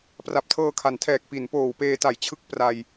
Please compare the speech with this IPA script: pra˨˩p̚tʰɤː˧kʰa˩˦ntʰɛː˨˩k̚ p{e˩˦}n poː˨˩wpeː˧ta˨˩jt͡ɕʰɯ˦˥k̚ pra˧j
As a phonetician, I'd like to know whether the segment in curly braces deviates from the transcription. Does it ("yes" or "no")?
yes